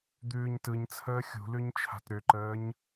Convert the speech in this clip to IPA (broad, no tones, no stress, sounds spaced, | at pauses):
d̪ ʉː ɲ t ɯ ɲ t͡sʰ əː xʲ ṳ l ʉ ɲ t͡ʃʰ a̤ t ɾ ʏ ǃ əː ɲ